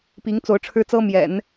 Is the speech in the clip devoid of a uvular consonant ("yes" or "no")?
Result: yes